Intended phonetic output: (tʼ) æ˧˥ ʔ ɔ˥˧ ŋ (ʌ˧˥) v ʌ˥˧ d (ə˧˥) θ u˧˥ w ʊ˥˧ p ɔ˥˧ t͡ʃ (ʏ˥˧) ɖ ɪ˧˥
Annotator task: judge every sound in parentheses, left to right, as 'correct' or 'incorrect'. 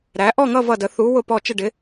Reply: incorrect, incorrect, correct, incorrect

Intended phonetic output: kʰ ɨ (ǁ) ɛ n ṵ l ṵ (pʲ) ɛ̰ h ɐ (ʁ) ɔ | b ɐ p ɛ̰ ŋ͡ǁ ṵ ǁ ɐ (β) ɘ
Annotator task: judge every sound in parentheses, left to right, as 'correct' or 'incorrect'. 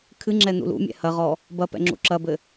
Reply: incorrect, incorrect, correct, incorrect

